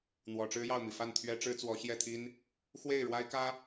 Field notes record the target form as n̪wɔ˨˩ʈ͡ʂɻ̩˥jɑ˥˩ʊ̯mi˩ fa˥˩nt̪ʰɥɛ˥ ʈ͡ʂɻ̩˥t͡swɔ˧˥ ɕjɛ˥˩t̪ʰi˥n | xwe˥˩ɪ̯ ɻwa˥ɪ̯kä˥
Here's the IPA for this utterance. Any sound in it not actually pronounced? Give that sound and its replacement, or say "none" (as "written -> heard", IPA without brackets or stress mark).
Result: none